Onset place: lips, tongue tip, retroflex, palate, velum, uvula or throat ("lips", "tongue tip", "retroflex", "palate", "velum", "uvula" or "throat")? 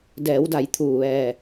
tongue tip